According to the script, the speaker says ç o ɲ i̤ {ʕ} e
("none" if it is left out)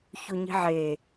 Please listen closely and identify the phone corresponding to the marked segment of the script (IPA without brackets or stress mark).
ʕ